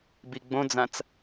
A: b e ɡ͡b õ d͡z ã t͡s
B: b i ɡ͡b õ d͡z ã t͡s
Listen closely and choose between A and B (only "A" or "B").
B